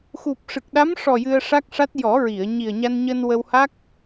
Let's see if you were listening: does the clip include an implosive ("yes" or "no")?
yes